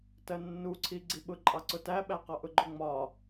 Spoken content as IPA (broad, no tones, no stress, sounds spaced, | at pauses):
t ɜ nː u ǀʰ i ɡ͡ǀ i ɓ ʊ ǃʼ ɑ ǀ ʊ t æ ɓ æ q ɒ ʔ ʊ ɡ͡ǃ ʊ ŋ͡m ɒ